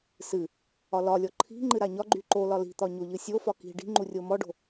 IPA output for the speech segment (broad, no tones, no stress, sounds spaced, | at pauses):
s ɨ | ɒ l ɒ lʲ ɔ ǃʰ i̤ ŋ͡ǃ ɨ ɾ a ɲ ɒ ɡ͡ǃ y ǃ o l ɒ l i̤ t̪ ɒ ɲ o ʎ ɨ sʲ o f ɒ k i̤ ɖ i̤ ŋ͡ǃ u rʲ o m ɔ ɖ o̤